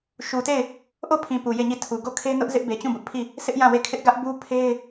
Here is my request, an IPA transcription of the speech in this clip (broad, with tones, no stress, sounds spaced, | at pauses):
ʃ u˨ t e˦˨ ɪ̯ | ʔ o˦˨ pʰ ĩ˨ p u˨ j e˦˨ ɲ i˦˨ tʰ u˨ ɡ o˦˨ kʰ e˦ n ʊ˦ ʔ z ɪ˦ ʔ b e˨ t͡ɕ ũ˦˨ b ʊ˦ ʔ pʰ i˦˨ | s ɪ˦ ʔ j ã˦˨ w e˦˨ kʰ ɪ˦ ʔ ɡ ä˦ ʔ b u˦ pʰ e˦ ɪ̯